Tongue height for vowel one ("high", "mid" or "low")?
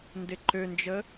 high